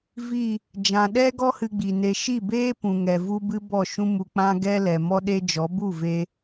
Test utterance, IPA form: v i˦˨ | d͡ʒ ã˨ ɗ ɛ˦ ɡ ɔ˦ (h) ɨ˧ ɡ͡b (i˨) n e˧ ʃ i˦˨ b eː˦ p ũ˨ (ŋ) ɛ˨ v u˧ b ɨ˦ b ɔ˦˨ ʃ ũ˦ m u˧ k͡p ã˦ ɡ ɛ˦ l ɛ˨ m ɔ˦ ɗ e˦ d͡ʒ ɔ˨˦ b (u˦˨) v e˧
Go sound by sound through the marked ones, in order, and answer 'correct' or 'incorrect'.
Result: correct, correct, correct, correct

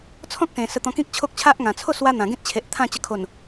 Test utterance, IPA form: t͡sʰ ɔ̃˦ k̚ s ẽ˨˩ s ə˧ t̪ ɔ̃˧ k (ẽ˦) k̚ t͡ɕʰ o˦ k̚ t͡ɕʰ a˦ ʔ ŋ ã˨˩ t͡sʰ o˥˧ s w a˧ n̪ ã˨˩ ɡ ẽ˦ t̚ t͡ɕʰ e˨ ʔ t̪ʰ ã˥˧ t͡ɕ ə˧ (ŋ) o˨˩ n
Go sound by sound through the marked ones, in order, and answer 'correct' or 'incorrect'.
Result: incorrect: ĩ˦, incorrect: kʰ

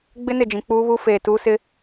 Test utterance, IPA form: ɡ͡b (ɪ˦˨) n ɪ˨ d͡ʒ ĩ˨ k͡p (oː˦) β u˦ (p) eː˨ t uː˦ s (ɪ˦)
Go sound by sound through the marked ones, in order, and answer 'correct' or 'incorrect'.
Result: incorrect: ɪ˦, incorrect: uː˦, incorrect: f, correct

